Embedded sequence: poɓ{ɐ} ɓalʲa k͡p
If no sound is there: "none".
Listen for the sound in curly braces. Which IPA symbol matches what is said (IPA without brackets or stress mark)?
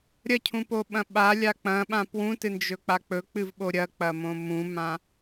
ɐ̃